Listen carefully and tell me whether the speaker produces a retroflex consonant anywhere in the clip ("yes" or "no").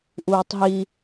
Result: no